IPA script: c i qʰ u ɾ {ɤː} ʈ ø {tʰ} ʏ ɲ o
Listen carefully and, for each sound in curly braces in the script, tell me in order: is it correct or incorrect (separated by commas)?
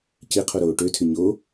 incorrect, correct